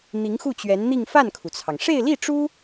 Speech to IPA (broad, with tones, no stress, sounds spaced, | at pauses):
n̪ i˧˥ ŋ x u˥˩ t͡ɕ ɥ ɛ˧˥ n n̪ i˥˧ ŋ f a˥˩ n kʰ u˩ t͡sʰ ɑ˩ ŋ ʂ e˥˧ ɪ̯ l i˥˩ ʈ͡ʂ u˥